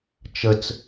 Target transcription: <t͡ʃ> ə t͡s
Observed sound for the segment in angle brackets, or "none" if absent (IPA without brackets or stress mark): t͡ʃ